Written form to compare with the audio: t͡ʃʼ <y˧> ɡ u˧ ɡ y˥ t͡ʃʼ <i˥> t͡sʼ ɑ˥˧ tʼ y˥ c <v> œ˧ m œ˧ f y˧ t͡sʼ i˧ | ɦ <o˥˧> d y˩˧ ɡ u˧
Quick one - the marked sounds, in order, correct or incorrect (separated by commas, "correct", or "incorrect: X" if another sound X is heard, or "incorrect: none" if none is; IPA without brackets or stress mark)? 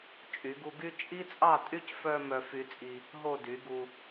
incorrect: y˩˧, correct, incorrect: f, correct